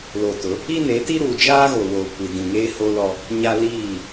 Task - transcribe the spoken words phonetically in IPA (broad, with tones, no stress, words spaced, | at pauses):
lo˨tʊ˨˦ | i˦ne˨˦ti˦ ɾuː˨d͡ʒaː˦ ɣo˨woː˨kʷi˨ dĩ˨ŋeː˦ho˦lɔ˦ | ɲa˦ liː˦˨